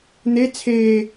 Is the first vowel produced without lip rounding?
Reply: yes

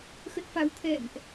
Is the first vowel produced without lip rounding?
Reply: yes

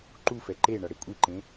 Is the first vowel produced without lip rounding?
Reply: no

